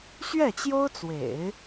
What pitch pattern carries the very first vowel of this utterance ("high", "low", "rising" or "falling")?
falling